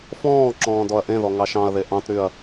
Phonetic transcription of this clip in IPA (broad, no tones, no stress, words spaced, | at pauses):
fɔ̃ːǁɔ̃ː dɔɐ̯ʔẽðɔ ŋɑʃɑ̃ɐ̯ðe ʔɑ̃tɾyɐ̯